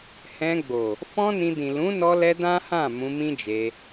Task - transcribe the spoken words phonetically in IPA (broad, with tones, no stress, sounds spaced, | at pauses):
h ɛ̃˧ ɡ͡b o˨ | f ɔ̃˦ n ĩ˧ d ĩ˨ l ũ˨˦ n ɔ˧ l ɛ˧ d ã˦ h ã˦˨ m ũ˧ m ĩ˦ d͡ʒ e˧